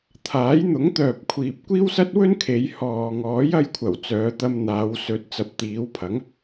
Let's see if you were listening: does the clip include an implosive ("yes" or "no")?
no